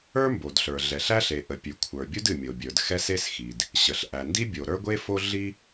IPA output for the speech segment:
ə˞˥ m b o˩ d ɬ ə˞˩ ɮ ɛ˩ ɬ æ˥ ɬ e˩ ʔ ə˩ pʲ ʉ˩ kʷʰ ə˞˩ bʲ u˥ d ɨ˩ mʲ o˩ bʲ ə˞˩ d x ɛ˥ s e˥ s x i˩ d | ɕ ə˩ ɬ ʔ æ˩ n d i˥ bʲ o˩ ɾ ə˞˥ ɡʷ e˥ f o˥ ɮ i˥

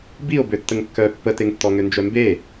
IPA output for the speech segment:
b i o̯ b ø tː ə ŋ kː œ pː ə t e ŋ tː ɔ ŋ ø n d͡ʒ œ m b e

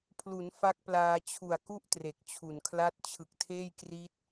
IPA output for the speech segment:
pʰ l u˩˦ n f a˦˥ k̚ p l aː˧ t͡ɕʰ u˨˩ a̯ k u˥˩ ʔ t r e˨˩ k̚ t͡ɕʰ u˨˩ n kʰ l a˥˩ t̚ t͡ɕʰ ɯ˨˩ k̚ tʰ eː˥˩ j k r i˦˥ t̚

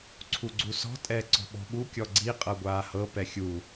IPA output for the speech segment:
ǀʰ u ɡ͡ǀ u s ɔ̤ tʼ ɛː ǀ ɔ̤ ɓ ɔ̤ ɓ u kʲ ɔ ɡ͡ǀ i qʼ ɤ ɡʷ aː h ɤ p ɛ xʲ u

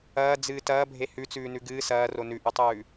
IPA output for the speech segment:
ɐː d͡z ɨː t ɐː bʱ e h ʉ t͡s ʉː n ʉ ɡ ɨː s ɐː r o n ʉ ʔ ʉ tˤ ʉː

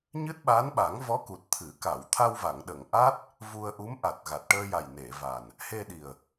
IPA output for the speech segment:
ɲ ɨ˦˥ t̚ ɓ a˧˥ n ɓ a˨˩˦ ŋ v ɔ˧˥ k u˨˩ t̚ t̪ʰ ɨ˨˩˦ k a˨˩˨ w t̪ʰ a˧ w v a˨˩˨ ŋ ɗ ə˨˩˨ ŋ ʔ a˦˥ t̚ | v u˧ ə̯ ʔ u˧˥ m ʔ a˨˩ t̚ ɣ a˨˩ t̚ ʈ əː˧ j a˨˩ j n e˨˩˨ v a˨˩ n | h e˧ ɗ i˨˩ ə̯

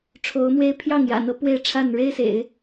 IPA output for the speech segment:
ʈ͡ʂʰ o˧˥ ʊ̯ m w e˥ ɪ̯ pʰ j ɑ˥˩ ŋ j ä̰˨˩ n̪ ɤ˧˥ p w e˥˧ ɪ̯ ʈ͡ʂʰ a˥˩ n ɻ e˥ ɪ̯ s ḛ˨˩˦ ɪ̯

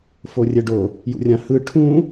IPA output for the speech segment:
f o rʲ ɛ ɖ o | j ṵ rʲ ã h ɯ ʈʰ ũ

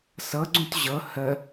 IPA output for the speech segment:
s ɤ ɡ͡ǀ ũ t ʑ ɤ h ə

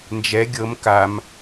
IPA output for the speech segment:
n d͡ʒ ɛ ɡʲ ɤ m k a m

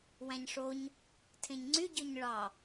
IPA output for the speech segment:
w æ̃ ɲ ʂ o ɲ | tʰ ẽ ɲ ŋ͡ǀ y ɟ ø ɲ ɭ ɑ

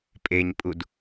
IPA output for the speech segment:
pʼ e ɲ pʼ u d

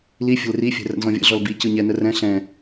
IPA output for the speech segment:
l i fʲ ə̤ l r i fʲ ɛ̤ r ə̰ n z ɔ̃ vʲ ə̰ ɮ ɔ l b i c ɯ ɲ ɛ n ə r ɛ̃ ɬ ɛ̃

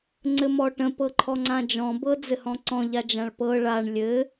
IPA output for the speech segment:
ŋ͡ǀ ɘ m ɔ ʈ ə̃ p ɤ ǃʰ ɔ ŋ͡ǀ ã d͡ʒ ɔ̃ b ɤ d͡z ɘ h ɔ̃ ǀ ɔ̃ ʎ a d͡ʒ ã ɭ p ɤ ɭ a ɳ lʲ ɘ

